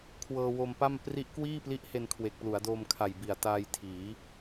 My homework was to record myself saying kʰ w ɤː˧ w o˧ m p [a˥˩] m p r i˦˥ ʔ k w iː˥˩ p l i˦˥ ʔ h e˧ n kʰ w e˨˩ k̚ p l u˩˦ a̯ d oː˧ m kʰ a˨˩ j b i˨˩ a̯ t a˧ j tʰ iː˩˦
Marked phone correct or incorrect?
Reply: correct